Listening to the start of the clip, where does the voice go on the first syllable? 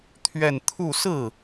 falling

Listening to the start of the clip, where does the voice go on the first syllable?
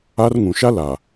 high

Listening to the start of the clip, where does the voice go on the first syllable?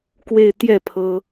falling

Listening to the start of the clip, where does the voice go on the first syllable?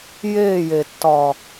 falling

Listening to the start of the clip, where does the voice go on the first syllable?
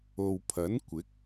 low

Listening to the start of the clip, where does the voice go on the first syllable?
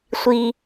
high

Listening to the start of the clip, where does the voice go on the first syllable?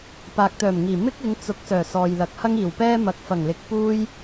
low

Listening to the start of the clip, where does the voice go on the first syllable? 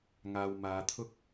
low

